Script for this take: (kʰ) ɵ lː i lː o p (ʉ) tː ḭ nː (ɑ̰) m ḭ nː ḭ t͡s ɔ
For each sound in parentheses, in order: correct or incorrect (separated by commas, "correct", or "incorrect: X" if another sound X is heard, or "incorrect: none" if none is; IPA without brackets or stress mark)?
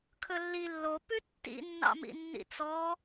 correct, correct, correct